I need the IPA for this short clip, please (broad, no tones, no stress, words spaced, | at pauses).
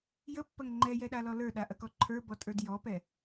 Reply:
jəpːɐŋ ŋ͡ǃɛjɛɗalɔ lə˞ɗaʔɐkɔ ǃʰə˞bɔtʼə˞d jɔpɛ